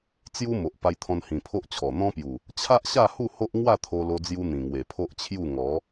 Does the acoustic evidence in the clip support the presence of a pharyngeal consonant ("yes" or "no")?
no